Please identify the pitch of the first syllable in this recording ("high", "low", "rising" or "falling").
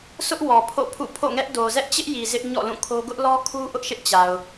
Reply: high